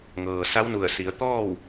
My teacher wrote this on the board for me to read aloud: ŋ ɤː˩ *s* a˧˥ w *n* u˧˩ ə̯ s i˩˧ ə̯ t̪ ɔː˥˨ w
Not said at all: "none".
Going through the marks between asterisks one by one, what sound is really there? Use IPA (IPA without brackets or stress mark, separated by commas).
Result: s, n